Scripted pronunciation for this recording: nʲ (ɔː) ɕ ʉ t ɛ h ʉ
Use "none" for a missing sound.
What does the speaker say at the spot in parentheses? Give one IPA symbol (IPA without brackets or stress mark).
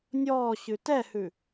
ɔː